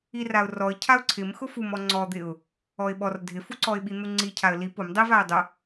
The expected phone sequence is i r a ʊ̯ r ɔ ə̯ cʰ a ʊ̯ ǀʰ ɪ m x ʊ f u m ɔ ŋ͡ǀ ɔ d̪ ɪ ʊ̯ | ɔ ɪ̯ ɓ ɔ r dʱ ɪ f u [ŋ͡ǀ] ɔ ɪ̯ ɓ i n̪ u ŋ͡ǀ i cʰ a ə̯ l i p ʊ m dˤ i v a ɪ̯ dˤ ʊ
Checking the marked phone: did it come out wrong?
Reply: yes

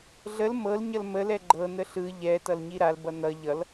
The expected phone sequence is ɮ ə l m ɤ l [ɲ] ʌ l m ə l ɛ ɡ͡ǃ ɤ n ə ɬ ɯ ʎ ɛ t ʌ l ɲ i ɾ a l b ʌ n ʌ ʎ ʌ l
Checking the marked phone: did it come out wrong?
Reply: no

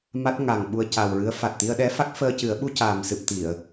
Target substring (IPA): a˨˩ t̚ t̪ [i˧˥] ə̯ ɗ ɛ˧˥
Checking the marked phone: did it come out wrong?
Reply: yes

